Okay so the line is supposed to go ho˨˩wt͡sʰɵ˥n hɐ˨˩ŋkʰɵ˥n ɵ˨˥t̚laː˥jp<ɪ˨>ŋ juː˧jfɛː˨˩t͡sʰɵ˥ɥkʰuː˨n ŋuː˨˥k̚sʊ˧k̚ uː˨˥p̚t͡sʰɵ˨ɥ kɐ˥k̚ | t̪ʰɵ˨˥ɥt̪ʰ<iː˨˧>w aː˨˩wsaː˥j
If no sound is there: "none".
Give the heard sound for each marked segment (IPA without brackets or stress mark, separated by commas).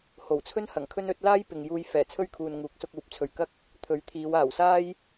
ɪ˨, iː˨˧